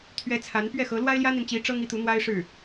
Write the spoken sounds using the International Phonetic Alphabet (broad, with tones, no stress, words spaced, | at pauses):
t̪ʰɥɛ˧˥ t͡sʰa˧˥n pɥɛ˥˩xɤ˧˥ lwa˥ɪ̯ljä˥n̪i˨nt͡ɕi˧˥ ʈ͡ʂɤ˥ŋ i˧˥t̪u˧˥n̪wa˥ɪ̯ʂɻ̩˥˩